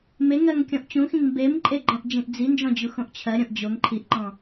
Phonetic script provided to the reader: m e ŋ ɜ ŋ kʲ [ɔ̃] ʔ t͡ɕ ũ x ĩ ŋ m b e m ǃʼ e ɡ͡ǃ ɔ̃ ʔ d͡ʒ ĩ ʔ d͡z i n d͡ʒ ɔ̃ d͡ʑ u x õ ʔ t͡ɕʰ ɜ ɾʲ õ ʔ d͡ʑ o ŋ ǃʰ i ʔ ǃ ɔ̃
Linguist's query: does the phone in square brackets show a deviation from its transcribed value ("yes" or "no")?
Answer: no